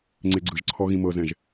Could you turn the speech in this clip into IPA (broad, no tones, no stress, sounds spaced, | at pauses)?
ŋ͡ǀ e ɡ͡ǀ ɯ ʒ ǀʰ ɔ ɣ ĩ m ɤ z ɛ̃ ʒ